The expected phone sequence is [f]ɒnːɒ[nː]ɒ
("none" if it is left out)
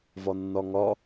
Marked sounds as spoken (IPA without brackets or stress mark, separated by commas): v, ŋ